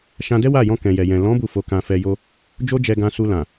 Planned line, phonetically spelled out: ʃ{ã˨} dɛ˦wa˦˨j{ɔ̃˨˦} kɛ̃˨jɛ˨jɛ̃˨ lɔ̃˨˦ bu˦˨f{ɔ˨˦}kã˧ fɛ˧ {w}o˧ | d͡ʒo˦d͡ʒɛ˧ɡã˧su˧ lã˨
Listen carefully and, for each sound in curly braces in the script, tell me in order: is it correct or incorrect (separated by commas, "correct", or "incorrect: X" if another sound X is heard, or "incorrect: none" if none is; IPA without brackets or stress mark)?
incorrect: ã˧, incorrect: ɔ̃˧, incorrect: o˨˦, incorrect: j